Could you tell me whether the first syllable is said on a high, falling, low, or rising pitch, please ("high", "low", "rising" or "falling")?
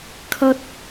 high